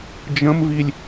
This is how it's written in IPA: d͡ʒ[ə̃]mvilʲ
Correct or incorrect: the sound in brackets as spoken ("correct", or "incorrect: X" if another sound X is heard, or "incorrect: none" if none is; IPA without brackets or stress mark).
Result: correct